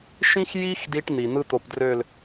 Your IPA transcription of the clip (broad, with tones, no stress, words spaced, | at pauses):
ʃĩ˦xji˦x di˦ʈn̪i˨ n̪ɯ˦t̪o˨pdrø˦˨l